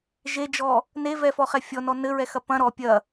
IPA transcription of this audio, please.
ʒ e d͡ʒ ɔ | n e v ɛ f ɔ χ ɛ fʲ ɔ n ɔ n ɘ ɹ ɛ x ɐ p ɐ̃ ɾ ɔ pʲ ɐ

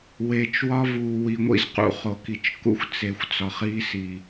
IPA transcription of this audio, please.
w eː˨ t͡ʃ w ɒ˦ v uː˨ w i˨ ŋʷ ḭ˦ z q ṵ˨ χ o˨ k i˨ t͡ʃ k ṵ˦ xʷ t͡s e˨ xʷ t͡s ɒ˨ χ iː˦ s iː˨

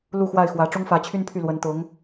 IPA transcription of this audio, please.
l u˥˧ x w a˥˩ ɪ̯ x w ä˧˥ ʈ͡ʂ ʊ˥ ŋ f ä˧˥ t͡ɕʰ y˥ n pʰ y˥˩ l w ə˧˥ n t̪ ʊ˧˥ ŋ

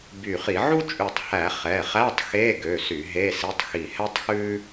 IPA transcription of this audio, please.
b y˧˩ χ i˧˩˧ ʕ u˥ t͡ʃʼ ʉ˧˩ tˤ h æ˧˩˧ χ ɛ˩˧˩ χ æ˧˥˧ tˤ x e˧˥˧ ɡ ø˩˧˩ s y˧˩˧ ɦ e˧˥˧ s i˧˥˧ tˤ x i˧˩ h ɛ˥ tˤ x ʉ˥

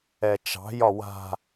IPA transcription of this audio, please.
ɛ t͡ʃ ɑ̤ j ɒ w a̤

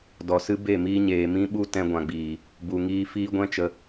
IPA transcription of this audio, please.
d ɔ˨ s ɨ˦ b e˦˨ m iː˦ ɲ eː˨ m ĩ˦ ɓ u˦ t ɛ̃˧ ɡʷ ã˨ ɡ͡b iː˨ | b u˨ ŋ iː˧ f iː˦ ɡʷ ɛ̃˦ t͡ʃ ə˧

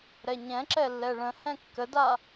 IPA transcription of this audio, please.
ɾ ɛ ɲ ɛ̃ ǁ ɛ lː ɛ ɭ ə̃ h ɛ̃ kː ə d a

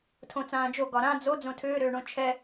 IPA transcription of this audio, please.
tʰ õ t͡s ãː d͡ʒ o ɡ ɒ ɾ ã d͡z o d͡z õ tʰ ʏː ɾ ʏː ɳ õ t͡ʃʰ ɛ

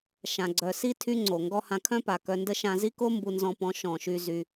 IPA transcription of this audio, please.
ʃ ã˨ ɡ͡ǀ œ˨ s i˦ tʰ y˦ ŋ͡ǀ o˨ ŋ ɡ ɔ˦ h ã˧ kʰ œ̃˦ p a˨ k œ˧ n d ə˦ ʃ ã˧ z i˦ k o˦ m b u˧ n z ɔ̃˧ p ɔ̃˨˦ ʃ ɔ̃˨ ʃ y˧ z y˧

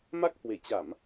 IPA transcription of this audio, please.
m a˦˥ k̚ h w e˧˩ t͡ɕ a˧˩˨ m

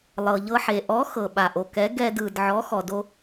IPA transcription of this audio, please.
lˠ ɤ˩ ʎ ɤ˧ ħ e˩ ʔ ɔ˨˥ x ɤ˩ ɓ a˩ ʔ o˩ k ɛ˨˥ ɡ ɛ˧ d ɯ˩ d ʕ ɔ˨˥ x ɔ˩ d o˧

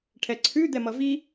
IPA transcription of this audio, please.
ʈʰ ɛ ǀʰ ʉ d̪ ɛ m ʌ v i

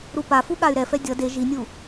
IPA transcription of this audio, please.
ɾ u p a f u ɠ a y̯ ɾ ɛ f ɛ dʲ ʌ d e ʒ i nʲ u

